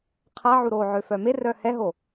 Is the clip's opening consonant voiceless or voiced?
voiceless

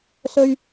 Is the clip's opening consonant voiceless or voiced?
voiceless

